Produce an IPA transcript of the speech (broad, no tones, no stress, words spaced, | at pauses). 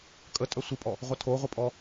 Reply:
kʼə tʼœsʷipʼɔ | ʁʷʌtʰoʁʷipʼɔ